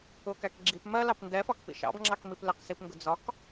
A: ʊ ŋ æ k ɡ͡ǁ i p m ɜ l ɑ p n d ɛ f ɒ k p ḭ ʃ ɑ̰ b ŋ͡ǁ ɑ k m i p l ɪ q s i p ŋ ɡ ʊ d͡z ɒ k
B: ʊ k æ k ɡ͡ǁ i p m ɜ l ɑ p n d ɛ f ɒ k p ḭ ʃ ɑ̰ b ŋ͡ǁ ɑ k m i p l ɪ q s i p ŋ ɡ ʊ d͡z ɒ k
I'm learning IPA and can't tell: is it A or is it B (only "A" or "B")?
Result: B